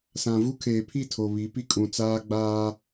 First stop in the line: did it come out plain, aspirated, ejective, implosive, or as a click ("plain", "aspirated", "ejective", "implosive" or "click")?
aspirated